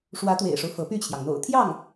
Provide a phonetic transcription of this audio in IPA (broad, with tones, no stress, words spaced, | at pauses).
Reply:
ʂwä˧˥t̪wḛ˨˩ɪ̯ʂo˦ʊ̯ fɤ˧˥py˥˩t͡ɕʰjɑ˩ŋn̪o̰˨˩ʊ̯ t̪ʰjɑ˥˩ŋ